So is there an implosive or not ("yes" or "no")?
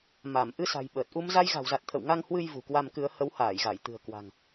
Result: yes